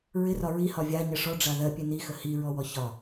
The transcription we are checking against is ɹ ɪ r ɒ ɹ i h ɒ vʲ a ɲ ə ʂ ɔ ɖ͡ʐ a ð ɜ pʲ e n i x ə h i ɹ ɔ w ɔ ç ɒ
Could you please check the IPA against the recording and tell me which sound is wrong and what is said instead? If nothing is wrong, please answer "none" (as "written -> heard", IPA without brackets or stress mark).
none